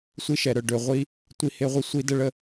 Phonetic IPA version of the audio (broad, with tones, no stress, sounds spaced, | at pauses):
sʷ i˧ ʃ ɛ˩ ɾ œ˩ ɖ ø˩ ʁʷ i˧ | tʷ i˧ h e˧ ʁʷ ə˧ sʷ i˧ d ə˧ ɭ ə˧